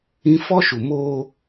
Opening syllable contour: high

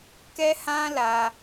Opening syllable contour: high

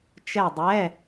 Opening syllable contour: falling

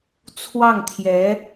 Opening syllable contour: falling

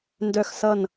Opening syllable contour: falling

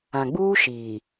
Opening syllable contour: low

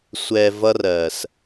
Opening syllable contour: low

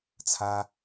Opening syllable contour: high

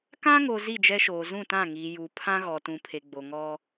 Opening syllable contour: high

